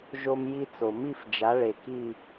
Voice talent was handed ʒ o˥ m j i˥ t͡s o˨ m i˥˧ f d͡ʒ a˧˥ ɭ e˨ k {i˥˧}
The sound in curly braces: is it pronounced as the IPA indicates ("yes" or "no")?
yes